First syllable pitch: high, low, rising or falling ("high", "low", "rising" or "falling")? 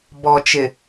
low